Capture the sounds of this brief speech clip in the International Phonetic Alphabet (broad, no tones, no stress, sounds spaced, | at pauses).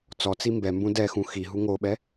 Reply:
t͡s ɔ t͡s i m b ɛ m b ũ d ɛ x ũ x i ɦ u ŋ o ɓ ɛ